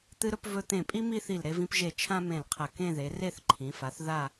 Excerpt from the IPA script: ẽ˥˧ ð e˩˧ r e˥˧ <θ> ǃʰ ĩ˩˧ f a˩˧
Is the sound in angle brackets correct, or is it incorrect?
correct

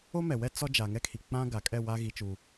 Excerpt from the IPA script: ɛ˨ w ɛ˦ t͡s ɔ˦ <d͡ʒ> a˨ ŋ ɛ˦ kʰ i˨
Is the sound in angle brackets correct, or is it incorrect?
correct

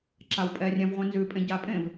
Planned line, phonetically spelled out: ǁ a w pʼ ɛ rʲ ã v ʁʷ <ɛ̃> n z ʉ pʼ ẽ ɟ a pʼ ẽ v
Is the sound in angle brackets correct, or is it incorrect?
correct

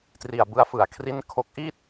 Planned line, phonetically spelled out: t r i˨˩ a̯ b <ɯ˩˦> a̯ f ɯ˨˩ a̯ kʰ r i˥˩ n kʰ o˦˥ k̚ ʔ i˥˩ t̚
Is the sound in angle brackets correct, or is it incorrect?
incorrect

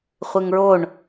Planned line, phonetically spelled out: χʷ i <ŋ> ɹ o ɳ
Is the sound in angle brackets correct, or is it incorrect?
correct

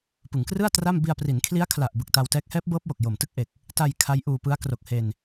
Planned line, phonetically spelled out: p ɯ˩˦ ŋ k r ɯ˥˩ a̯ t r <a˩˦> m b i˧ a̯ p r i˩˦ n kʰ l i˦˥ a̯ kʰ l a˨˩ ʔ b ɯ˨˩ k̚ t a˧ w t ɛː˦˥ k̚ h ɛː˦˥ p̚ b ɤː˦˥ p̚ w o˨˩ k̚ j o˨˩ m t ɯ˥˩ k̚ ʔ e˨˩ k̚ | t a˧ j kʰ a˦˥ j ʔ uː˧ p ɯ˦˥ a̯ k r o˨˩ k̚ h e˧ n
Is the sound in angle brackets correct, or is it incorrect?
incorrect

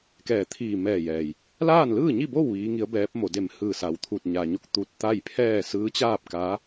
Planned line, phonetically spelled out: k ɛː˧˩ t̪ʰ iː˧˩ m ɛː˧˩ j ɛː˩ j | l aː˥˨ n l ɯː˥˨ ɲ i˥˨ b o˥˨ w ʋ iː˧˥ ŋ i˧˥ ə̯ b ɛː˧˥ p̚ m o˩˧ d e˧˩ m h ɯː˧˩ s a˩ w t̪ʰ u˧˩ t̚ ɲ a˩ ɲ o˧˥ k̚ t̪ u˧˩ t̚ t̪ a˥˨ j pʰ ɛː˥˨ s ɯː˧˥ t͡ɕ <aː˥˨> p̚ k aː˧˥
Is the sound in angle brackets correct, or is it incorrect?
correct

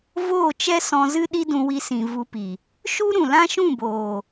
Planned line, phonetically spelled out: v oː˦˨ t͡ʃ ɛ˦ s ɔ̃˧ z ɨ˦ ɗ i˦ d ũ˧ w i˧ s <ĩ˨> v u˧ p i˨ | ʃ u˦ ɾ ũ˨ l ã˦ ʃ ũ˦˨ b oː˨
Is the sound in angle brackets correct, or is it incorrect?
correct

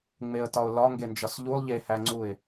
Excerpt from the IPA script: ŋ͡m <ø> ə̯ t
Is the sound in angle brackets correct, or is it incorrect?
incorrect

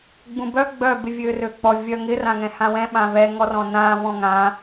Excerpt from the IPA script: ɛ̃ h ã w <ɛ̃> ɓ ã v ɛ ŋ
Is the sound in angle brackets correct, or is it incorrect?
correct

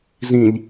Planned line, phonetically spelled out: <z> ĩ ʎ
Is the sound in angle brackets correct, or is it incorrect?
correct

